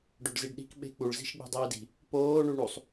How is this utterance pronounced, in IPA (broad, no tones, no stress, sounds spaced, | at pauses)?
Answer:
ɖ o ɖ z i ɖ ɗ i̤ k ɓ e̤ k͡p u ɭ z i̤ ʃ ɡ͡b i̤ dˤ iː d i̤ | p oː ɳ u ɳ u sˤ